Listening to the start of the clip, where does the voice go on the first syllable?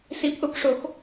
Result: rising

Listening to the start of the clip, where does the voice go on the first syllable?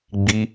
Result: high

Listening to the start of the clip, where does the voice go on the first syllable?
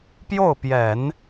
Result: falling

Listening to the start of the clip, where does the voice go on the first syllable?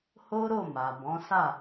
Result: high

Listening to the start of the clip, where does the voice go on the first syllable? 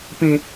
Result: low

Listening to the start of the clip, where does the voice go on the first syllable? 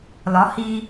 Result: rising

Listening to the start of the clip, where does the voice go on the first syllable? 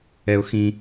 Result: low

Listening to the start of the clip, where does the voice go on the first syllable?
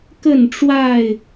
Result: falling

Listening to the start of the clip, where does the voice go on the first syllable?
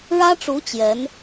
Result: high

